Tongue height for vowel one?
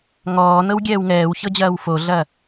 mid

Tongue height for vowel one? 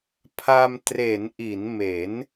low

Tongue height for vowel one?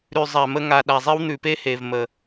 high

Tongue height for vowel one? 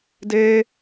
mid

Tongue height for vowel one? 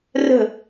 mid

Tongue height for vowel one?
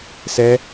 mid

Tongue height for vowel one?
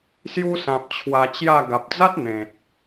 high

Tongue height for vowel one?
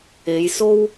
mid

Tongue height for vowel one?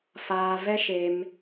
low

